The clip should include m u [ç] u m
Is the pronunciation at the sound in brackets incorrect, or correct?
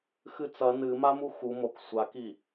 incorrect